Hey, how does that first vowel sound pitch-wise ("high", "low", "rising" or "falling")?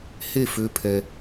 falling